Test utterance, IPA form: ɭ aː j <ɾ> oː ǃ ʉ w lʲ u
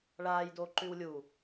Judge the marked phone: incorrect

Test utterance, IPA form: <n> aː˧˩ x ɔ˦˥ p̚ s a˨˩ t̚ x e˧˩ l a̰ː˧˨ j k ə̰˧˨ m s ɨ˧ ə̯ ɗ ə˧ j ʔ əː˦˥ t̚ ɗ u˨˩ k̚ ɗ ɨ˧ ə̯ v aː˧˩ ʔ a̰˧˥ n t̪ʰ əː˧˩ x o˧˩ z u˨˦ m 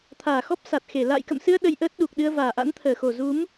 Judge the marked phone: incorrect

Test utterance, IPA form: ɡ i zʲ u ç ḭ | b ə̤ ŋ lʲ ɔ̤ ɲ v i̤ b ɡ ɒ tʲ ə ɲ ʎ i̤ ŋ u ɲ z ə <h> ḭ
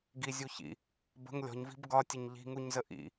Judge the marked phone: incorrect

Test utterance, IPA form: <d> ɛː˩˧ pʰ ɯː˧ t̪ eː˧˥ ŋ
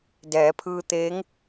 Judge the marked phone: correct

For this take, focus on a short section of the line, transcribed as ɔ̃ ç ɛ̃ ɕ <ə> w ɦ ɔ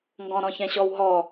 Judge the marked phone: incorrect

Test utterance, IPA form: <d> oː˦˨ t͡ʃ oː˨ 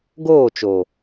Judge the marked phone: incorrect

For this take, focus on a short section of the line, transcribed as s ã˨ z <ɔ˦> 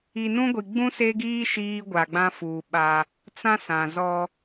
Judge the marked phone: correct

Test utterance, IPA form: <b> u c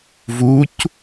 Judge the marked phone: incorrect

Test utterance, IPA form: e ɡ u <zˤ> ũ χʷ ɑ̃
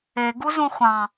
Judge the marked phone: incorrect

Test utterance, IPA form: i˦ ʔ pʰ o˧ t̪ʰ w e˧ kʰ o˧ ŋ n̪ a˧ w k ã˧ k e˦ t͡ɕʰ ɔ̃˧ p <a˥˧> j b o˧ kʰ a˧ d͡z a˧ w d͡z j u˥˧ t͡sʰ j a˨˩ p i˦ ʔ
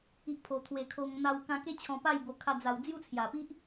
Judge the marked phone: correct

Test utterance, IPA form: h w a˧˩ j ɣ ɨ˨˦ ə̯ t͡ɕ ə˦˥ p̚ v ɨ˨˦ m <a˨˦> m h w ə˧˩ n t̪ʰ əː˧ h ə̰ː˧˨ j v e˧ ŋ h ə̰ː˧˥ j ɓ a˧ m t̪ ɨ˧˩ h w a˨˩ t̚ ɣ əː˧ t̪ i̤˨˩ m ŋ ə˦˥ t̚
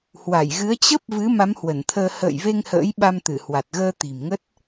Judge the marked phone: correct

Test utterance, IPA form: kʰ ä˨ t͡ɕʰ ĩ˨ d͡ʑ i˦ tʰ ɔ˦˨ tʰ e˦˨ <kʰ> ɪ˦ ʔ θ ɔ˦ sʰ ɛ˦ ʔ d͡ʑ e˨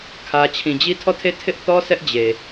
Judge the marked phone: incorrect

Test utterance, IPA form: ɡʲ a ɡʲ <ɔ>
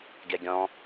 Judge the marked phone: incorrect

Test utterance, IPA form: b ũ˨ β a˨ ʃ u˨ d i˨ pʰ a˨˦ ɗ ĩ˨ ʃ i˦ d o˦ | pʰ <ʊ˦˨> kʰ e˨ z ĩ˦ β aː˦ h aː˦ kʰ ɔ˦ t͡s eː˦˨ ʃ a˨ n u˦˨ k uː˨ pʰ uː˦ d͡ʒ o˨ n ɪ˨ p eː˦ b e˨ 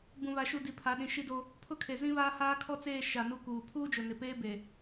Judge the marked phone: incorrect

